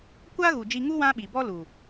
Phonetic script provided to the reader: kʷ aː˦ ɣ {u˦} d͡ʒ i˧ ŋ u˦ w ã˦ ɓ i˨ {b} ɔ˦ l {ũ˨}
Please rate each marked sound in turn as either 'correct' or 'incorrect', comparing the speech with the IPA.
incorrect: u˨, correct, incorrect: u˨

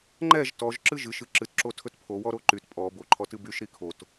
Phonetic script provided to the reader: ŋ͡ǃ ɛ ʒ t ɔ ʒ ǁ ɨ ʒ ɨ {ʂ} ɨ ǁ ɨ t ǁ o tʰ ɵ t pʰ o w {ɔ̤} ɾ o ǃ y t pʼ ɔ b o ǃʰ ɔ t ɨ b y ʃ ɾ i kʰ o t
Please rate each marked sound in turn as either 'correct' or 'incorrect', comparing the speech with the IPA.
incorrect: ʃ, incorrect: ɔ

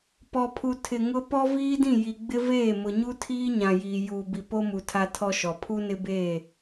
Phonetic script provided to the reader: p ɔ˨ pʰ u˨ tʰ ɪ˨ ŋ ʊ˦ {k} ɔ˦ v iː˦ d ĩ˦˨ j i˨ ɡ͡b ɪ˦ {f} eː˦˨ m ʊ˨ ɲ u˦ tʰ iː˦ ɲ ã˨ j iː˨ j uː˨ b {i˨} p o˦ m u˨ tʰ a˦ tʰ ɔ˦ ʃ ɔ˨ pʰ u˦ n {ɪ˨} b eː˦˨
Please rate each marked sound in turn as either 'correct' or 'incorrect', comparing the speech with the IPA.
incorrect: p, incorrect: v, correct, incorrect: ɪ˦

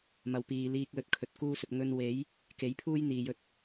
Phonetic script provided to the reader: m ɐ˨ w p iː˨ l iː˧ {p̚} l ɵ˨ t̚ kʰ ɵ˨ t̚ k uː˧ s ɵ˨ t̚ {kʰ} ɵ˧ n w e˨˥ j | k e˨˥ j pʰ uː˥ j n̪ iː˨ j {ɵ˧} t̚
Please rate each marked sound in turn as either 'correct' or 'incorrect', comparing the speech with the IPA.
incorrect: k̚, incorrect: ŋ, correct

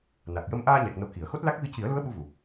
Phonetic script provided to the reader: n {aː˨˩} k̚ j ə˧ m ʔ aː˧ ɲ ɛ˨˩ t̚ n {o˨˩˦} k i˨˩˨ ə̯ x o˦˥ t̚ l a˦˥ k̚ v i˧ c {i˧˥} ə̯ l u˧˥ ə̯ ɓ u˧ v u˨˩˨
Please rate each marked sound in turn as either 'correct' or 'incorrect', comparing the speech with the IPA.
incorrect: a˨˩, correct, incorrect: i˨˩˦

